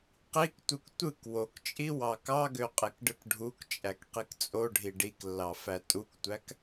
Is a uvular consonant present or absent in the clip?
present